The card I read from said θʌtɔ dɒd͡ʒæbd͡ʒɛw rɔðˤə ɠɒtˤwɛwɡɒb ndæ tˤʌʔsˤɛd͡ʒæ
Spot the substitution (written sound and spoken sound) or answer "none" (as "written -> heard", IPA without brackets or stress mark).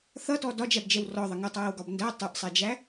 ɠ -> ŋ